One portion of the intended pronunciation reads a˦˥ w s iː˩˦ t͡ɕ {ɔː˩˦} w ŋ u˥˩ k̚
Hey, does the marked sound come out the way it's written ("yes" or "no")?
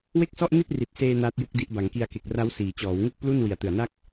yes